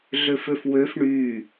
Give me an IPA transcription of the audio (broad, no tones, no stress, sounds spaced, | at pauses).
ɮ ø f ø f w ø f ɳ y